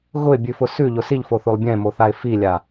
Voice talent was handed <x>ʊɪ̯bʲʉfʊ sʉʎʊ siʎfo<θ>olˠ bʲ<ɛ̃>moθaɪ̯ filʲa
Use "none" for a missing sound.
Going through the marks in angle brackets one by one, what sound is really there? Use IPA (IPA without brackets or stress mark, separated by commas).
ɣ, θ, ɛ̃